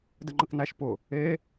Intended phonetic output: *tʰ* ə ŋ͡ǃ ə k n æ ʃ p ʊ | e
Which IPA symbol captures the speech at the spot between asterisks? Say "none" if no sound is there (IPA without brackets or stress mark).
d